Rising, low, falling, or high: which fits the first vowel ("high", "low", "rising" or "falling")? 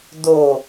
low